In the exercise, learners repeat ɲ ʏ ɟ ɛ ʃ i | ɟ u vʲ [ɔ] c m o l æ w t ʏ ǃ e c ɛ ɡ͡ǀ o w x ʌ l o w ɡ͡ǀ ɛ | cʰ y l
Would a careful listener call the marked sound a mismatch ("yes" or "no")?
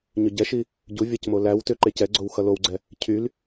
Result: yes